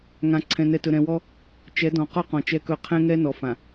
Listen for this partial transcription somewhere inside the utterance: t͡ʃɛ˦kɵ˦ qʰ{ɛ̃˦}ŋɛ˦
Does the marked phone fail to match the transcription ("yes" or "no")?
no